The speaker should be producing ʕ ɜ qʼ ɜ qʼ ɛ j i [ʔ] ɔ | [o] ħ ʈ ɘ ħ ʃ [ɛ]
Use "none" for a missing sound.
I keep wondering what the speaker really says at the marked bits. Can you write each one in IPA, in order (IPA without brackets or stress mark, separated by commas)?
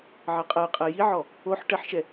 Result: ʕ, o, ɛ